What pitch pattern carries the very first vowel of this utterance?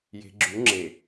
low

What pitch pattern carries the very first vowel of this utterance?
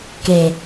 low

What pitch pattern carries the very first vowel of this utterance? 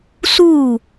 falling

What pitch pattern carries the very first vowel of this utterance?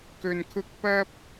low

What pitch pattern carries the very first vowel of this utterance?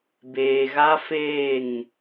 low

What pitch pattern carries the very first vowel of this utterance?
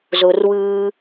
low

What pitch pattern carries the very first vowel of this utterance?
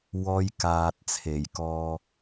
high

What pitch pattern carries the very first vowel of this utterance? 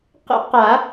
high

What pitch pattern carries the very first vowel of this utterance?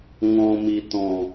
low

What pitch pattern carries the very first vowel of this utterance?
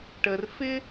low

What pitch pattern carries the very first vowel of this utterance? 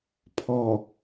low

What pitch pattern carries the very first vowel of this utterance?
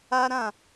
high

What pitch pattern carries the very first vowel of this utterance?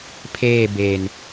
falling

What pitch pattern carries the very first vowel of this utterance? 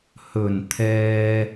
low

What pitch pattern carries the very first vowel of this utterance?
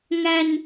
low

